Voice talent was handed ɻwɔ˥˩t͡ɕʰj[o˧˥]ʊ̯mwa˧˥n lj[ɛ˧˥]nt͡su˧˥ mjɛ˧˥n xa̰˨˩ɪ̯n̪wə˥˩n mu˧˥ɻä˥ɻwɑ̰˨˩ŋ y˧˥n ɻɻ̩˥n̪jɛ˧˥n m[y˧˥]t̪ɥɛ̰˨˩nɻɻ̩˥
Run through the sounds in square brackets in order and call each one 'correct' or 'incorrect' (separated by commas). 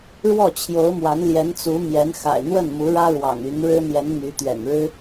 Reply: correct, correct, correct